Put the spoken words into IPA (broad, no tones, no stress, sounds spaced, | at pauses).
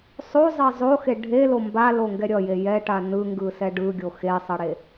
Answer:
sˤ o zˤ ɛ zˤ o x e ɖʱ e l o m b a l o ŋ ɡ ɛ ɾʲ ʌ j e j ɛ ʈ a n ɯ ŋ ɡ ɯ s ɛ ɖ ɯ ɡʲ o x e sˤ ʌ ɽ e